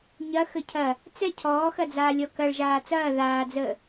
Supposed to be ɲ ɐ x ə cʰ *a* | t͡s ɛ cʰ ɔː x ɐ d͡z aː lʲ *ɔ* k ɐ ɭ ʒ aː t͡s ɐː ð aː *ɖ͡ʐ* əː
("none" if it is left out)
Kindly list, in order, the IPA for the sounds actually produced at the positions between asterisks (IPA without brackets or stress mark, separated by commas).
ɐ, ɔ, d͡z